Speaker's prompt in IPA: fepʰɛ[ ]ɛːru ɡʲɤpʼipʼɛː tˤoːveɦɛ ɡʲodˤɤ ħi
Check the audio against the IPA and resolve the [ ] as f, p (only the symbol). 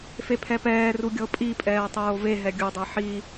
p